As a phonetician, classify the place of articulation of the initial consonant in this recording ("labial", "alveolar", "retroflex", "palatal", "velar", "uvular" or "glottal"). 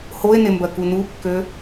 glottal